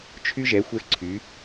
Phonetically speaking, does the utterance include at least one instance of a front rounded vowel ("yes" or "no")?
yes